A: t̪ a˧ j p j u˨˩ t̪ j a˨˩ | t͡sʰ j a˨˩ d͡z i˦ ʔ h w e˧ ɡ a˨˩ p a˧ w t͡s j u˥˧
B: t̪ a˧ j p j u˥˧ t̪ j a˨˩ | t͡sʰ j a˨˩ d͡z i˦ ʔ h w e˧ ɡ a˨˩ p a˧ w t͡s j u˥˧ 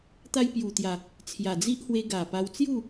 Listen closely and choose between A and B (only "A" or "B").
A